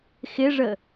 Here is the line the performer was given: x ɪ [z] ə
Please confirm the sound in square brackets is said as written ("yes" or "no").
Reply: no